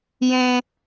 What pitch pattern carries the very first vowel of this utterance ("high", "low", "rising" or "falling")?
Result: low